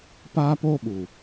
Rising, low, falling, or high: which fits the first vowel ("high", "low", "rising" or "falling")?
high